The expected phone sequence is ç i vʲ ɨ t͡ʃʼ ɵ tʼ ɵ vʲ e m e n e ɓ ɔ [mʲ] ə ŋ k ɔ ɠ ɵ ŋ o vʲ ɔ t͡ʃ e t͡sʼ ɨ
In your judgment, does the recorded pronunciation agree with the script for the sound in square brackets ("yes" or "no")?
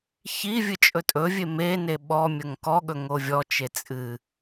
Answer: yes